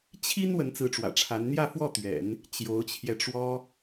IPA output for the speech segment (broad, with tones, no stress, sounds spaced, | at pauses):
t͡ɕʰ i˥ n w ə˧˥ n t͡s ɹ̩˧˥ ʈ͡ʂ w ä̰˨˩ ʈ͡ʂʰ a˧˥ n n̪ j ä˥˧ f w ɔ˥˩ t̪ ɥ ɛ̰˨˩˦ n | t͡ɕ j o˧˥ ʊ̯ t͡ɕʰ j ɛ˧ ʈ͡ʂ w ɔ˥